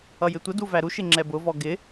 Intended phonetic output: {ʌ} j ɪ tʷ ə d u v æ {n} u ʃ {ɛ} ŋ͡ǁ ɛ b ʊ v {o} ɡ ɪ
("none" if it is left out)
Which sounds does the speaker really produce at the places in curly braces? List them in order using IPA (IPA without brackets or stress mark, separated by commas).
ʌ, ɾ, ɪ, ɔ